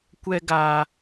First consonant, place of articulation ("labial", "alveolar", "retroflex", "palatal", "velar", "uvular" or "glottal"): velar